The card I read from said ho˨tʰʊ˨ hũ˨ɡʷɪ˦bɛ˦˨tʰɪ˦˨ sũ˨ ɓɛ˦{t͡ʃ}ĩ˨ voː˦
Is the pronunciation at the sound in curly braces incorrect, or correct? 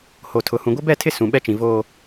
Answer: correct